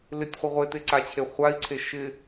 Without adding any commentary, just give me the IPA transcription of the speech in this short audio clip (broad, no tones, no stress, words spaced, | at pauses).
lɪtʲχʷɪ ʁʷeteǀat͡ɕʰe χʷai̯ǀʰe ʃɪ